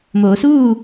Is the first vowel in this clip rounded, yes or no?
yes